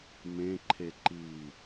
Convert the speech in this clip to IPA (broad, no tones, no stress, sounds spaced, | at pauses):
m ẽ ǃʰ e ǃ i